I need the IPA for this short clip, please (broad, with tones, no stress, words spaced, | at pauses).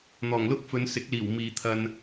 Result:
n̪ɔː˨˩ŋlʊ˥k̚fɵ˨˧nsɪ˨˥k̚ liː˨˩w miː˨t̪ʰɐ˧n